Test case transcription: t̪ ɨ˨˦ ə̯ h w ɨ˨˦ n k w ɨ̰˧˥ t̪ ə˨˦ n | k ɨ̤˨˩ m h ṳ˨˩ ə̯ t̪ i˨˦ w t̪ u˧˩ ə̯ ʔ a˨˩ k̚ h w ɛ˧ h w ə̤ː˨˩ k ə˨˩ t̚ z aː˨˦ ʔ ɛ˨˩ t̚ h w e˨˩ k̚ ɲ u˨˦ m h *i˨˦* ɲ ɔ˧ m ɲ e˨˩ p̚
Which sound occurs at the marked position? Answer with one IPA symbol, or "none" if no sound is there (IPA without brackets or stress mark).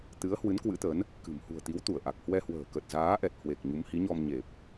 i˨˦